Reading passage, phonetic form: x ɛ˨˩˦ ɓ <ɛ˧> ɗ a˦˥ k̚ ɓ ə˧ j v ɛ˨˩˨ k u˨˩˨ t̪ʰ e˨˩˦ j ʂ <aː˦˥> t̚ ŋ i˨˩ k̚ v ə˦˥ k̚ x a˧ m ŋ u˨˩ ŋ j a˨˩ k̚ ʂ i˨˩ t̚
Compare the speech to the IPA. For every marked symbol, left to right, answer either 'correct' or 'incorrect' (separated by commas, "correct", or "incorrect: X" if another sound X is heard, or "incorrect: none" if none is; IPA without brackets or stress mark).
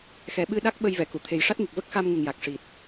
incorrect: ɨ˧, incorrect: a˦˥